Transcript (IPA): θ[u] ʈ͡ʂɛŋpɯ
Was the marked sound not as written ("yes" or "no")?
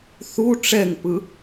no